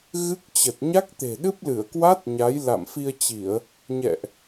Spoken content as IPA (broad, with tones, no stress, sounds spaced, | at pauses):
ɣ ɨ˦˥ k̚ t͡ɕ ə˨˩ t̚ ɲ a˦˥ k̚ t̪ e̤˨˩ ɗ ɨ˦˥ p̚ l ɨ˧˩ ə̯ k w a˦˥ t̚ ɲ a˨˦ j l a̰˧˨ m f i˧ ə̯ t͡ɕ i˧˩˨ ə̯ | ɲ ɛ̰˧˨ ʔ